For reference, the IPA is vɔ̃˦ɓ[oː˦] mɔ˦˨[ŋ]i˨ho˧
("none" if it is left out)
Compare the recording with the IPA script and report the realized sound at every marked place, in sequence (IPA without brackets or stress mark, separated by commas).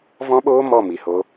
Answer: oː˦, m